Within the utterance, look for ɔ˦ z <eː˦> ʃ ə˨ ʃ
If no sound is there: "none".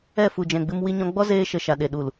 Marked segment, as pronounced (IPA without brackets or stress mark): eː˦